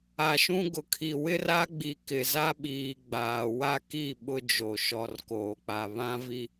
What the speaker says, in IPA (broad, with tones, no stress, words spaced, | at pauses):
a˨ʃũ˦ɡʊ˨kʰi˨ wɪ˦ra˦ɡ͡bi˨ kɪ˨za˦ɓiː˨ ɡ͡baː˨ wa˦ki˦˨ ɓʊ˦d͡ʒo˨ ʃɔ˨rkoː˨k͡pa˨ βã˦vi˦